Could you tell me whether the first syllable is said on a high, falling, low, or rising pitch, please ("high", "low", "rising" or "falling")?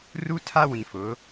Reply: high